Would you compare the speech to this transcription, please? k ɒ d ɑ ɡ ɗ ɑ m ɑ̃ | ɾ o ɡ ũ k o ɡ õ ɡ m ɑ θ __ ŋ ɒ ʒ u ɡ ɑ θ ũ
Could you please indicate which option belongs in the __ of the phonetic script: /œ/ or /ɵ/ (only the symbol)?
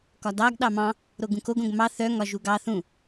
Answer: œ